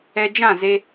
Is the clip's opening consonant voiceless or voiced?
voiced